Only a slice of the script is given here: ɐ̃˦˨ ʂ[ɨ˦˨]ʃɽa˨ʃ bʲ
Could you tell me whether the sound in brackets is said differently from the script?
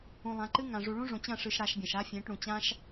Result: yes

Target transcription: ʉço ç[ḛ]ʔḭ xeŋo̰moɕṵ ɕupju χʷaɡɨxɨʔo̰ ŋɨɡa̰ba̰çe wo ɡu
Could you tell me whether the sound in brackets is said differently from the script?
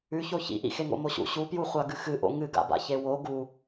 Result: yes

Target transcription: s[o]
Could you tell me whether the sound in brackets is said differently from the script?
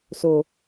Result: no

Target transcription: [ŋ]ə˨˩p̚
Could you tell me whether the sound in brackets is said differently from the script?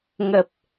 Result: no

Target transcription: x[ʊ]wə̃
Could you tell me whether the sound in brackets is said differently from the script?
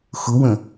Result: no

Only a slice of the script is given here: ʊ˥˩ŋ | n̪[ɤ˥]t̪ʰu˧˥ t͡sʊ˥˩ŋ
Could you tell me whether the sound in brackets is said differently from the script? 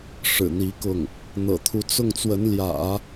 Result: yes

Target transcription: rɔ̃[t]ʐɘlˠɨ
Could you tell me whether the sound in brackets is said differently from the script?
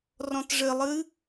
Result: no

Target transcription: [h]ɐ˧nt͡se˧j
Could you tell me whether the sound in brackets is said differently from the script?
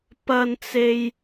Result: yes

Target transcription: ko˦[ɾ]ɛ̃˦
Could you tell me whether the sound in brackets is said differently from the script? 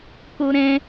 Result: no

